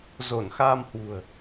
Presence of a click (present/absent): absent